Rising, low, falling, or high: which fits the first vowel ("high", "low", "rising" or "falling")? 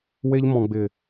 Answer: high